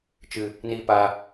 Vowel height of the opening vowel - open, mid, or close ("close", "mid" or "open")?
close